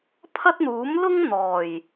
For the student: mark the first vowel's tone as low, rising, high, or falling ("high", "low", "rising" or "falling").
high